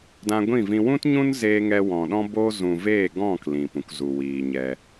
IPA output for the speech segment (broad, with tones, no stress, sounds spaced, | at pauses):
d ã˧ ɡʷ ĩ˦˨ v ĩ˧ w ũ˦ t ɲ ũ˦ n z eː˧ ŋ ɛ˧ w ɔ̃˨ ɗ ɔ̃˦ b oː˦ z ũ˨ v eː˦˨ ɡ ɔ̃˦˨ k l ĩ˨ p ũ˨ k z u˨ w iː˨ ɲ ɛ˧